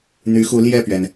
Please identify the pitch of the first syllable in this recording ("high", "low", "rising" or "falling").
rising